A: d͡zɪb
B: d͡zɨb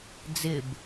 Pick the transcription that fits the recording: A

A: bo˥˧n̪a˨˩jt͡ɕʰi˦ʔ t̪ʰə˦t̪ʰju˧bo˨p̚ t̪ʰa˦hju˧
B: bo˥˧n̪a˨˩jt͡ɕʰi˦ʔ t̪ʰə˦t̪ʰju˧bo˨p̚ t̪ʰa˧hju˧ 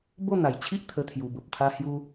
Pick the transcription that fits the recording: B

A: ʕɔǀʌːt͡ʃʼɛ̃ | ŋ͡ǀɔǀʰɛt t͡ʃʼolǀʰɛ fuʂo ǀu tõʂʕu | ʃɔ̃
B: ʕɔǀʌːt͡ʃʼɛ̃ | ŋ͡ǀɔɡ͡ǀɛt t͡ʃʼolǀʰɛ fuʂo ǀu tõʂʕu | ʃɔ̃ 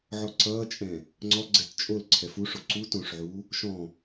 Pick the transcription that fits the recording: B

